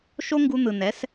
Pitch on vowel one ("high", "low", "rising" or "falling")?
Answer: high